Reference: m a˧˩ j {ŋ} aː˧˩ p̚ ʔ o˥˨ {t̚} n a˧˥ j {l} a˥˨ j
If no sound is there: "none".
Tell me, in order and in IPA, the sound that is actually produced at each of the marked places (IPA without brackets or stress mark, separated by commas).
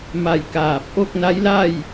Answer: k, k̚, l